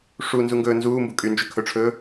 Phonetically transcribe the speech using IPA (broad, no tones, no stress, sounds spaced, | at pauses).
ʂ u n z u ŋ ɡ ɵː n z uː m b u kʼ y n d͡ʒ ɵ kʰ ɵ ʈ͡ʂʰ ɵː